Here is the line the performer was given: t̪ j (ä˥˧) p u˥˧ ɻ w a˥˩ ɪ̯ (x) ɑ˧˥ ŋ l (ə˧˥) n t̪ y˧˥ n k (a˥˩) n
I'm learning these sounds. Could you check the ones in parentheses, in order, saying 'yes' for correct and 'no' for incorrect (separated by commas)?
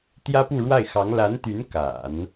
no, yes, no, no